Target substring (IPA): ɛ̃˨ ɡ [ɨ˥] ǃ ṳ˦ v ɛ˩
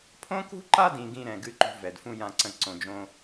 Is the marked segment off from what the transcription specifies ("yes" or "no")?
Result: no